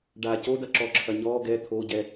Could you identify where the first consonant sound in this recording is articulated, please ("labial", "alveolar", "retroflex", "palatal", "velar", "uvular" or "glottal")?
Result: retroflex